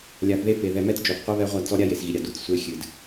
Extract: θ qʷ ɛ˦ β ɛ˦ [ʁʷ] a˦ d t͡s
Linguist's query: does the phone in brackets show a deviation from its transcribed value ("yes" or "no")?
no